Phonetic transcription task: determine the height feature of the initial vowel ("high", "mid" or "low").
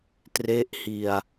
mid